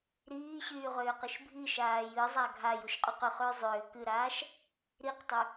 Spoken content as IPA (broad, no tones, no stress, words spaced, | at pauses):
ɾiːɕyːʁʏːqɨʃ bʱiʃaː jɨzˤa ɡʱajuʃqʼyq ʏχʏː zˤʏː kɨɾaːʃ | ɾiqtˤʏ